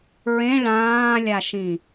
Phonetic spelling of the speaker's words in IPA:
ɹ ẽ ɭ ãː lʲ a ʃ ĩ

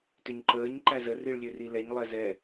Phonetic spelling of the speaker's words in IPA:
t ʏ ɲ ǃ əː ɲ ǃ æ z ə r i ɭ lʲ ø r i l ɛ ɲ lˠ ɛ z ɛ

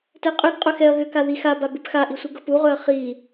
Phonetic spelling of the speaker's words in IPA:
t ɛ qʼ ʏ ɡ qʼ ɵ x ɛ ɐ̯ ɣ ʏ k a ð i x a b a b ʉ p x a ʔ i sʷ i ɡ ɤ p u ʁ ɵ ɐ̯ χ i

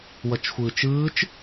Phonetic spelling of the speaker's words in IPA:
w ʌ t͡ʃ xʷ ɯː t͡ʃ ɯː t͡ʃ

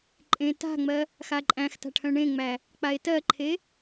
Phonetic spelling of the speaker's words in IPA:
ǃʼ ẽ t a̤ ŋ͡m ɜ | x a ǃʼ æ̃ x t a̤ ʈʰ œ̃ ɳ ẽ ŋ͡m æ | k͡p a e̯ t ɜ ǃʰ e

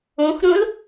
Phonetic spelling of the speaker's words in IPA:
ũ x ɾ ũ l

